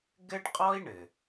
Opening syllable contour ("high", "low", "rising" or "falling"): high